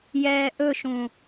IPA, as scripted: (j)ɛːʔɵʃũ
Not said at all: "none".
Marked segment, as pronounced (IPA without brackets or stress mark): j